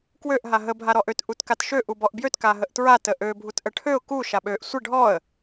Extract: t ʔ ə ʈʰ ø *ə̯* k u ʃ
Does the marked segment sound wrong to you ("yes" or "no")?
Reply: yes